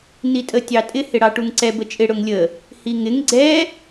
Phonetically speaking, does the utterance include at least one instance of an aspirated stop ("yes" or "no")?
no